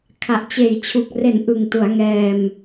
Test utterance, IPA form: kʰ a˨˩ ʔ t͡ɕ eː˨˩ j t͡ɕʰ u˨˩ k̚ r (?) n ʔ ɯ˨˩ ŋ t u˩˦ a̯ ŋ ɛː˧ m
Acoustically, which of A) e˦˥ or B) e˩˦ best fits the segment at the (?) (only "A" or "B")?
B